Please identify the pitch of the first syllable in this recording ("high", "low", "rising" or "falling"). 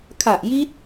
low